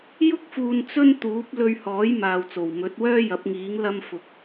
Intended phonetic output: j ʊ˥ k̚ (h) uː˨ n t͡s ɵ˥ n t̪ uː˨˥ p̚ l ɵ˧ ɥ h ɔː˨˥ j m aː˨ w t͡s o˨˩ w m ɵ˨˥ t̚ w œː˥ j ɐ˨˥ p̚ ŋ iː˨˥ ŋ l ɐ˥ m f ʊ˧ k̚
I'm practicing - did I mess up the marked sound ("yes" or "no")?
yes